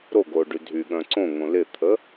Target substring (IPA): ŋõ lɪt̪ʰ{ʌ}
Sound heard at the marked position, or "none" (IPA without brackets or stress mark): ə